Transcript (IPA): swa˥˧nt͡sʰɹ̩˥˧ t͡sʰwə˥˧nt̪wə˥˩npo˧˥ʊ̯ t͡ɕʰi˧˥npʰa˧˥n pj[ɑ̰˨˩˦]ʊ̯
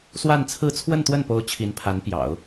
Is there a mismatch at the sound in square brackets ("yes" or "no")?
no